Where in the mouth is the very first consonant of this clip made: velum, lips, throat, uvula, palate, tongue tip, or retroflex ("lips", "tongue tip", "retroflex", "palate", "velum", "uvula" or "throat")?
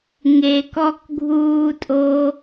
velum